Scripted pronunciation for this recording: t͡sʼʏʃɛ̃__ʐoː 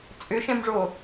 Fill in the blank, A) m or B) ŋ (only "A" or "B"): A